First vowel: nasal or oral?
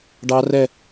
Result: oral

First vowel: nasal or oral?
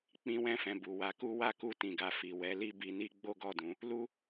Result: nasal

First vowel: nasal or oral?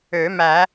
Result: oral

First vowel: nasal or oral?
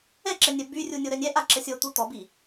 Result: oral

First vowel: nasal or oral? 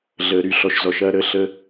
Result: oral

